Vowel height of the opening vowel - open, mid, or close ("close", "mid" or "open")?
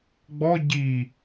mid